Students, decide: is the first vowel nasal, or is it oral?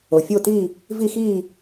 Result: oral